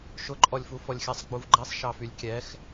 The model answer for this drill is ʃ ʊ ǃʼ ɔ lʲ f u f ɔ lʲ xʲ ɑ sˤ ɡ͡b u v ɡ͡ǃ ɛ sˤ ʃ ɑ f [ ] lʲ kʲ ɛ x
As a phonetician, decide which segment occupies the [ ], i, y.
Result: y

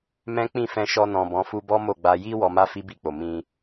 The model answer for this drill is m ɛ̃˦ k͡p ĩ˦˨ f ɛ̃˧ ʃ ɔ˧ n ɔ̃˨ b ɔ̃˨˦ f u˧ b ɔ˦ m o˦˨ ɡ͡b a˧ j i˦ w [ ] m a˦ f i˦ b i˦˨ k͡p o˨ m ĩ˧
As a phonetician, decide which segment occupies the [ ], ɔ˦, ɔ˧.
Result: ɔ˧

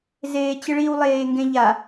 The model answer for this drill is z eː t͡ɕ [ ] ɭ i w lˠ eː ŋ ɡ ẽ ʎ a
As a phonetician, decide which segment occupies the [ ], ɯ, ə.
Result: ɯ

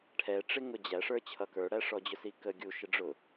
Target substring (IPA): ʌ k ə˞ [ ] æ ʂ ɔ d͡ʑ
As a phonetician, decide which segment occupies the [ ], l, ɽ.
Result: ɽ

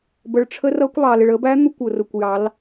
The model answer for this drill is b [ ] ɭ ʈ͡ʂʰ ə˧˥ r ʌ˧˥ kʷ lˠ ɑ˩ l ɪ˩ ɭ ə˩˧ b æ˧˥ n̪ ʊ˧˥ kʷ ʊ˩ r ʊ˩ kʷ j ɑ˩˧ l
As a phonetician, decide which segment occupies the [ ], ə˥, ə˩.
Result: ə˩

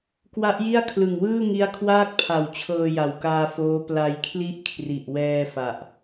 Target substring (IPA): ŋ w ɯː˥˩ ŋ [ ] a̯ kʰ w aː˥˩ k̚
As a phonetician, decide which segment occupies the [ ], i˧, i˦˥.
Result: i˦˥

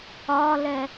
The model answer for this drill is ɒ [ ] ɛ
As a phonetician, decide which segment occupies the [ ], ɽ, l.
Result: l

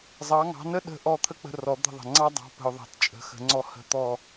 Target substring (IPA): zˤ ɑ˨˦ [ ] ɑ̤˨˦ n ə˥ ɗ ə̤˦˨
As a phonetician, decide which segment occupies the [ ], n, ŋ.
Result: ŋ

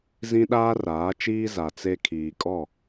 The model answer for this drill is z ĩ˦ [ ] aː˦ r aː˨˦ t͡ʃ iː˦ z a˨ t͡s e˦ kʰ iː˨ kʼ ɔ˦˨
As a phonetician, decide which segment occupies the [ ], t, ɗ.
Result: ɗ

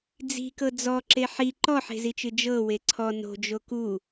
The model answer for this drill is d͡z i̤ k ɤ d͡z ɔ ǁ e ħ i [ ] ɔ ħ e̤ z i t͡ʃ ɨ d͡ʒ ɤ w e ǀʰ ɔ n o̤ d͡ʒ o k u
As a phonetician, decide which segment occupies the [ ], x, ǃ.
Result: ǃ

